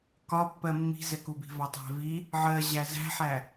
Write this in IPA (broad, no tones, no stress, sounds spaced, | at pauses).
k ɒ pː ɜ mː i̤ z ɛ k u b i̤ v ɒ tˤ æ̤ v i | ʕ ɜ ʑ æ z æ̤ ħ æ